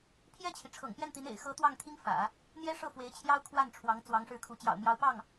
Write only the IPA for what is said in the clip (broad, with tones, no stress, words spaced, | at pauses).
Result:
pʰjɛ˥˩t͡ɕʰi˩ ʈ͡ʂʰɤ̰˨˩ŋpjɛ˥˩nt̪i˧˥n ḛ˨˩ɪ̯xɤ˧˥ t̪wɑ˥˩ŋt̪ʰi˥ŋ fä̰˨˩˦ | n̪jɛ˥ʂɤ˥˩ fwe˧˥ɪ̯t͡ɕʰjɑ˥ʊ̯ kʰwa˥˩nʈ͡ʂʰwɑ˧˥ŋ t͡swɑ˧˥ŋʂɻ̩˥˩kʰu˧˥ t͡ɕjɑ̰˨˩ʊ̯mjɑ˧˥ʊ̯ pɑ˥˩ŋ